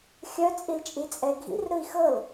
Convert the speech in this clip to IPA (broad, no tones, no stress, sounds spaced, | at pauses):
xʲ œ t͡sʼ i l t͡ʃʼ i t͡sʼ ɛ ɡʱ ḭ r ɾ ɯ i̯ x ɤ l